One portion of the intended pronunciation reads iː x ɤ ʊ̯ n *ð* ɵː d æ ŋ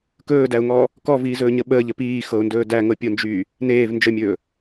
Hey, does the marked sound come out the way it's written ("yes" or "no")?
no